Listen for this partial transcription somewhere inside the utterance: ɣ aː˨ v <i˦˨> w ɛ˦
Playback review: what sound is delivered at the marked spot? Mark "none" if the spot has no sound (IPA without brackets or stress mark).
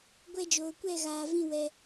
ĩ˦˨